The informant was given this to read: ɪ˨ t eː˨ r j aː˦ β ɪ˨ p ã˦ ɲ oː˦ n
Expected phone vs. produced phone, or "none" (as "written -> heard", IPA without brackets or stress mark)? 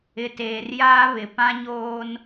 none